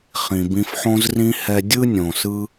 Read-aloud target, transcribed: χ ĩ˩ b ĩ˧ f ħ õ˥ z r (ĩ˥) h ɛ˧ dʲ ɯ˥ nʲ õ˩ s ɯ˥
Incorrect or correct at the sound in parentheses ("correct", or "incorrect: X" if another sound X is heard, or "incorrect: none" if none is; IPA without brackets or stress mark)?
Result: correct